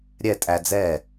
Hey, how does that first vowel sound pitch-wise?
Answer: falling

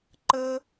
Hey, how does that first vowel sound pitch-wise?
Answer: high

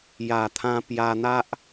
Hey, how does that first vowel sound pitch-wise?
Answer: low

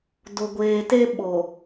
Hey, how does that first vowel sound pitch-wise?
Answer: low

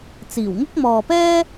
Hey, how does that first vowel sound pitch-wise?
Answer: low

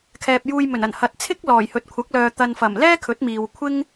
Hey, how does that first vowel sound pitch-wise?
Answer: low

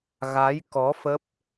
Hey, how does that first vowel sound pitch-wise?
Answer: rising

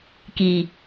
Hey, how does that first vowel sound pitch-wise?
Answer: low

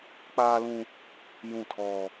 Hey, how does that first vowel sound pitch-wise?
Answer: high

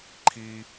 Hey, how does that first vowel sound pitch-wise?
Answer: high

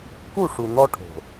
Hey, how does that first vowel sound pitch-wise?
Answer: falling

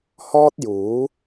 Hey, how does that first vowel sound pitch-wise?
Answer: high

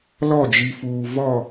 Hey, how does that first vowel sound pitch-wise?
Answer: falling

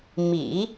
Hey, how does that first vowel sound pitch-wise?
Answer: low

